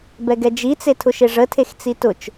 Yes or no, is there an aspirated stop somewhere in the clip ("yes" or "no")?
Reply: yes